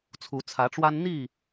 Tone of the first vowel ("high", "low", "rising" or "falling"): rising